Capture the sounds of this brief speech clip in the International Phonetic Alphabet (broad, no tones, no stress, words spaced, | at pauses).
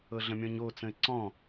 ɤɮə̃mʲɔ̃ɲo t͡sə̃ɪ̯ǀɔ̃